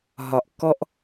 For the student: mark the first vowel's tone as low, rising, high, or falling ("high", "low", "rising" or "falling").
low